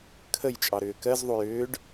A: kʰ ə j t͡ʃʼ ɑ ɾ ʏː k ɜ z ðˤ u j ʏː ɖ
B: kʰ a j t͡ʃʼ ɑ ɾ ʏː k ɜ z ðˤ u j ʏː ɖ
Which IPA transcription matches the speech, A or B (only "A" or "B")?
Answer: A